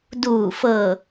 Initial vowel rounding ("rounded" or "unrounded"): rounded